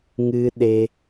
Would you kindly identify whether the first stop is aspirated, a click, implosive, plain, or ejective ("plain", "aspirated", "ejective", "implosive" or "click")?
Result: implosive